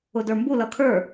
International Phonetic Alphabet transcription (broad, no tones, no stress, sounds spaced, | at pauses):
ʊ d ə˞ m b u l ʌ kʰ ə˞